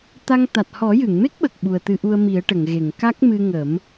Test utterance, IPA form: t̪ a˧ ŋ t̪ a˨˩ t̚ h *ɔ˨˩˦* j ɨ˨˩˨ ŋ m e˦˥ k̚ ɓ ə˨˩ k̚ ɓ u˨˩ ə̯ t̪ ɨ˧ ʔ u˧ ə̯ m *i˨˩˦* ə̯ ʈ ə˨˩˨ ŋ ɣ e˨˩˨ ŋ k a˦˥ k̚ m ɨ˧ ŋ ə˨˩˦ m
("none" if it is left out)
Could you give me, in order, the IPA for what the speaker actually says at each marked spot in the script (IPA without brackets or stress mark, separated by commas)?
ɔ˨˩˦, i˨˩˦